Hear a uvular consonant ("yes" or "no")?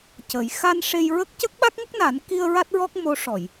no